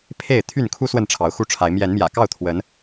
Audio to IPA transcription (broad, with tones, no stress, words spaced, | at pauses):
pʰe˥˨ɪ̯ t̪ʰy˥˨nkʰu˦ swə˥˨nʈ͡ʂʰɑ˨˦ʊ̯xu˥˨ʈ͡ʂʰa˨˦ɪ̯ mjɛ˨˦nmjä̰˨˩kɑ˥˨ʊ̯ t̪ʰwə˨˦n